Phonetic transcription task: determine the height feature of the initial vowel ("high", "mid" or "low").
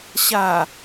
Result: low